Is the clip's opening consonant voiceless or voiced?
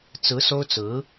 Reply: voiceless